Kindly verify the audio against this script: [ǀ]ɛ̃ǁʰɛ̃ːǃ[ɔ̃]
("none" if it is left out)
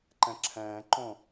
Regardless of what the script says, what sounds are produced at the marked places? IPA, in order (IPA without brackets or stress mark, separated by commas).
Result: ǃ, õ